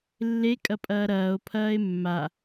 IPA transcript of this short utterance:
lːekʼɐpʼɐː ɾɐːo̯pʰɐːe̯ mːa

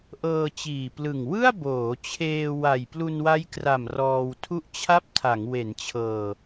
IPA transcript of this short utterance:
ʔɤː˧t͡ɕiː˨˩plɯ˨˩ŋ wɯ˥˩a̯boː˩˦t͡ɕʰeː˧ wa˨˩jplu˧nwa˦˥jkra˨˩m rɔː˧wtʰu˥˩ʔt͡ɕʰa˥˩p̚ tʰa˩˦ŋwe˩˦nt͡ɕʰɤː˧

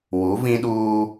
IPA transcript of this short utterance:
wu˨˦vĩ˦ɗuː˦

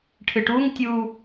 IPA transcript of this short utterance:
ʈʰɨʈuŋtʲuː

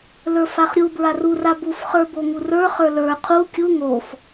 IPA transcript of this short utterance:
lə˞faχɾʲu bɹaru rabuf χə˞boŋurə˞ χə˞lə˞ qʰu kʲu ŋof

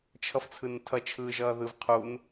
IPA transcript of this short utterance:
t͡ʃʰʌft͡sʰɯntʰʌ t͡ʃʰɯːʒʌːðɯvqʰun

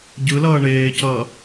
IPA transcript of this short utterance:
ɟɯlʌː ɳeːcʌː

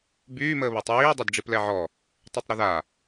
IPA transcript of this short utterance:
byːməːβəːtˤ jiː dˤodɖ͡ʐiplɛʕɔ | tˤytˤɾəða

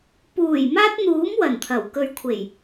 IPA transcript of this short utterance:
puː˨˩j maː˥t̚n̪uː˨˥m wɐ˨˩nt̪ʰɐ˨˩w kɵ˨ɥkʷʰe˨˩j

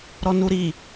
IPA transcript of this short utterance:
ɾɔnuɾi

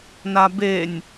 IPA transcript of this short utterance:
nabenʲ

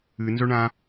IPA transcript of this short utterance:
ɨnzɵɳã

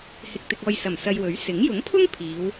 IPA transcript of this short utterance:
hɪ˧k̚ t̪ɪ˧k̚ɔː˧j sɐ˨˩m sɐ˧jwɵ˨˥ɥ sɪ˨˥ŋ jʊ˨˥ŋpʰʊ˥ŋ pʰiː˨˧w

